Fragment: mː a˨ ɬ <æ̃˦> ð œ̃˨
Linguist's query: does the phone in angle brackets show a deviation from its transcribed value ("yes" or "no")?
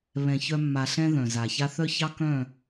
yes